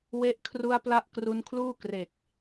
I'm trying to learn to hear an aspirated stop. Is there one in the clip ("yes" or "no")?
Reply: yes